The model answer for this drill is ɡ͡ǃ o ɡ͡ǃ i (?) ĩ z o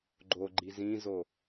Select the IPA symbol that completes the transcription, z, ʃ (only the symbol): z